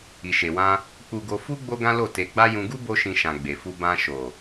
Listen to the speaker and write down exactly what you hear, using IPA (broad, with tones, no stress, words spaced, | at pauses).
i˨ʃe˨wã˧ | k͡pu˧ɡo˧ fu˦ ɡ͡bo˦ɡã˦lo˦˨ te˧ɡ͡ba˦ jũ˧ɡu˦ bo˦ ʃĩ˧ʃã˨ ɡ͡be˨fu˧ bã˧ʃo˨